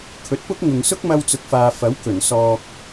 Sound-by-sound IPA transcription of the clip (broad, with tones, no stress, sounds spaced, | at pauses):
kʰ ɵ˨˥ t̚ p ʊ˥ k̚ ŋ ʊ˨ ŋ s ʊ˥ k̚ m ɐ˧ w t͡s ʊ˨ k̚ f aː˨ f ɐ˨˥ w k ɵ˨˩ n s ɔː˨ k̚